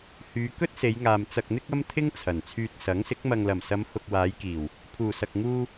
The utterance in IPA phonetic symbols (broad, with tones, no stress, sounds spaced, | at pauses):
h yː˨˧ k ɵ˥ t̚ s e˨˧ j ŋ aː˨ m t͡s ɐ˨ k̚ n̪ ɪ˧ k̚ ɐ˧ m t̪ʰ ɪ˥ ŋ t͡sʰ ɐ˨˩ n t͡sʰ yː˨ t̚ s ɐ˨˥ ŋ s ɪ˨˥ k̚ m ɐ˨ ŋ l ɐ˨˩ m s ɐ˨˧ m h ʊ˨ k̚ w aː˨˧ j k iː˨˩ w | pʰ uː˨˩ s ɐ˨ k̚ ŋ uː˧